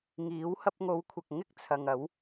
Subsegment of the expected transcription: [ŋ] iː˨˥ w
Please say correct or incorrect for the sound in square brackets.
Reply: correct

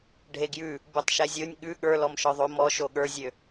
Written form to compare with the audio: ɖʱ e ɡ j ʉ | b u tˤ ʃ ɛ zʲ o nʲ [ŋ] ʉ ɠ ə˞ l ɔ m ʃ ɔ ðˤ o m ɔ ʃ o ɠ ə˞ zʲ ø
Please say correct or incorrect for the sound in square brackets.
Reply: incorrect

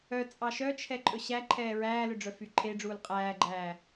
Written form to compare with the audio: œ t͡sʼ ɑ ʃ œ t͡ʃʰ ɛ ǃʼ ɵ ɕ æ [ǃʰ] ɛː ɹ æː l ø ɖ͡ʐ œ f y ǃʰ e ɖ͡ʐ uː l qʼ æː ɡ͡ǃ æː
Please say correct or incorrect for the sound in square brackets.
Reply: correct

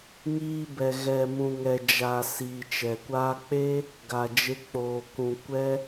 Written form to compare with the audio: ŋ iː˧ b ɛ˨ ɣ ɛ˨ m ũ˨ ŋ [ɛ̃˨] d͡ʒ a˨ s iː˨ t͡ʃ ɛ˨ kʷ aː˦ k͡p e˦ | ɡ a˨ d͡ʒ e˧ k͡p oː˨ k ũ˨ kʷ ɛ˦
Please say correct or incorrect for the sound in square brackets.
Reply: incorrect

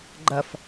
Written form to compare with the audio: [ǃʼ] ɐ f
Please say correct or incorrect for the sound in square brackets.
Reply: incorrect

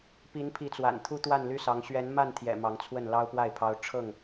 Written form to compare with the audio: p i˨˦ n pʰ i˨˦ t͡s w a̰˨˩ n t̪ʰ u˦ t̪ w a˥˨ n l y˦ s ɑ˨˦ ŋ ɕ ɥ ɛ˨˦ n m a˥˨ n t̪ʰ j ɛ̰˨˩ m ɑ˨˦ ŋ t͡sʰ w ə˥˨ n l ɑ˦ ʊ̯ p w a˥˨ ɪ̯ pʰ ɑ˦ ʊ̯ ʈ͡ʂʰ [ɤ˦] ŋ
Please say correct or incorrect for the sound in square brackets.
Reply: incorrect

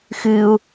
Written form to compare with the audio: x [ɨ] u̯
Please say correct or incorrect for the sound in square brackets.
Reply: correct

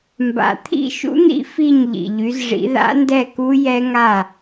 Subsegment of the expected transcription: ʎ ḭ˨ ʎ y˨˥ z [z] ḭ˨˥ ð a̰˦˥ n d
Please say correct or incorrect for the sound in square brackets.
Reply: incorrect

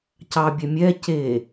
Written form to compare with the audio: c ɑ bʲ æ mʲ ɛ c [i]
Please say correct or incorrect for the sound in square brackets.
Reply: incorrect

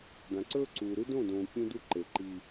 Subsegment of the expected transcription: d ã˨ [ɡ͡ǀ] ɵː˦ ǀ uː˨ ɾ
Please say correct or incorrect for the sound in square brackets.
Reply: incorrect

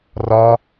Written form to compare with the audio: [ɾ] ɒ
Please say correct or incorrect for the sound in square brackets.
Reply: incorrect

